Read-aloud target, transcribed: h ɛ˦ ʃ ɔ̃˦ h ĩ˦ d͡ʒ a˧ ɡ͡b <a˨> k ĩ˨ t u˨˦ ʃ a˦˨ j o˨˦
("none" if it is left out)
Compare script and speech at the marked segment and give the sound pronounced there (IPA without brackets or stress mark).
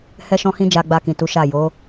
a˧